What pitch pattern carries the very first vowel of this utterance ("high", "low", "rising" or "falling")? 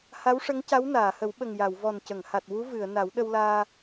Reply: rising